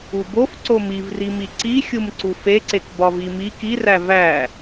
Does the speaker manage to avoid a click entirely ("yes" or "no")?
no